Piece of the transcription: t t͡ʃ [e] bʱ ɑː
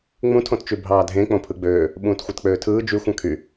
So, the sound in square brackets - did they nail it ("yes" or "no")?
no